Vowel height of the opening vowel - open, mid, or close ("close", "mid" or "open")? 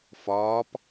open